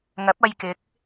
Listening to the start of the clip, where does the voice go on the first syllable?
rising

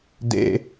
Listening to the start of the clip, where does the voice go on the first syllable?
high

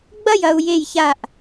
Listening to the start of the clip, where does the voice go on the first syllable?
falling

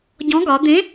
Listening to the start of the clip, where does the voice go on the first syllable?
rising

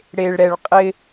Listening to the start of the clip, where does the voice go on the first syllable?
low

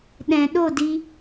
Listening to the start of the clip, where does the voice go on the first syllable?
low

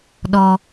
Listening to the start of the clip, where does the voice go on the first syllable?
high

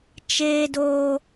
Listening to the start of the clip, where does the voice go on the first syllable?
high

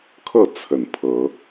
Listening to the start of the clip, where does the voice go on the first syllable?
falling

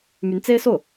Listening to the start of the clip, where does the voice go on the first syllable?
rising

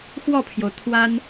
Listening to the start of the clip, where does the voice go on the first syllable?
falling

